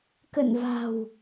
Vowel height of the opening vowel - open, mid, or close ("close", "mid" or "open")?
mid